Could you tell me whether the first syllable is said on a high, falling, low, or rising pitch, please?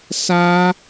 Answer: high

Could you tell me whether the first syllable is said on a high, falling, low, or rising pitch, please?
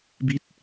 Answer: falling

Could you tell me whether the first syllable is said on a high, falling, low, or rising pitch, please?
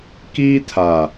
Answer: high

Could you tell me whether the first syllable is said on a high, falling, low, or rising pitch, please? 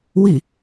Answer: falling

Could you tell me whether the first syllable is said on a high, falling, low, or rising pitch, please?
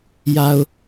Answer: low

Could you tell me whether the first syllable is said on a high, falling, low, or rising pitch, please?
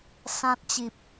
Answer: high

